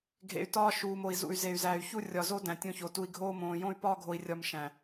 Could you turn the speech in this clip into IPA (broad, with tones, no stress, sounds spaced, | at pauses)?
ɡʱ ḛ˨ y̯ t ɒː˦ ʃ uː˨ m o˨ i̯ z ṵ˨ y̯ z e˨ y̯ z æː˨ y̯ ç u˦ rʲ ɒ˨ z o˦ d æ̃˨ tʲ õ˦ ç o˨ t u˦ i̯ ɡʱ oː˦ m õː˨ j õ˦ y̯ p ɒː˦ ɡʱ o˨ i̯ rʲ ɒ˨ m ʃ æ̃˨